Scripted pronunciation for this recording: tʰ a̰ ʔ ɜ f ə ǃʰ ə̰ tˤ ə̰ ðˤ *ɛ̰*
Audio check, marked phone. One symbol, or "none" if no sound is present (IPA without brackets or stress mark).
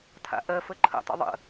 ə̰